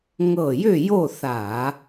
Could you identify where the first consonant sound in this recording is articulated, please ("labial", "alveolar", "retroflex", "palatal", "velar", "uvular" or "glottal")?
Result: velar